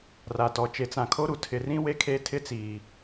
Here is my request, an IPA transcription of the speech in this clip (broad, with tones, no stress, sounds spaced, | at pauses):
r a˨ t ɔ˨ t͡ʃ e˨ t͡s ã˨ kʰ o˦ ɾ u˨ tʰ ɪ˨ r ĩ˦ w e˦ kʰ e˦ tʰ ɪ˦ t͡s iː˨